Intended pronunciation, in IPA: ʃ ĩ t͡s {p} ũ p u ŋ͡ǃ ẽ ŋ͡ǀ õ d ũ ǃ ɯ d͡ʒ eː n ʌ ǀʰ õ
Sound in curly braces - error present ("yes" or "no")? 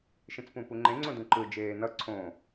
no